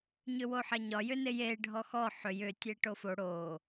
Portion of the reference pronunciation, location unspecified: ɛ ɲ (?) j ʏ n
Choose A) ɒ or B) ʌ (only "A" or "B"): A